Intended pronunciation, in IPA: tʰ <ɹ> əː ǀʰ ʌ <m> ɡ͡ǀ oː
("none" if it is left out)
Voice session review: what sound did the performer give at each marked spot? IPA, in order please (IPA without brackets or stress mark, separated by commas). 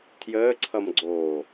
j, m